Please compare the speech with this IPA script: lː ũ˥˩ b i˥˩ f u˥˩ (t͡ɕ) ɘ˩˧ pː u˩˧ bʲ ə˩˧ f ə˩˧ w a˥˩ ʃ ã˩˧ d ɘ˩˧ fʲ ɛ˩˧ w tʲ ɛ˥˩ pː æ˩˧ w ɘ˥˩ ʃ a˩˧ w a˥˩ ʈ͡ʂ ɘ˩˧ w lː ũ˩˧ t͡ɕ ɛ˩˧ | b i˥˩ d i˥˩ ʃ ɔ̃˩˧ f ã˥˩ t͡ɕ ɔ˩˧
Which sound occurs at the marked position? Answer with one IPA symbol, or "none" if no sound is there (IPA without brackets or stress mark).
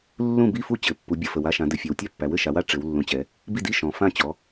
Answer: t͡ɕ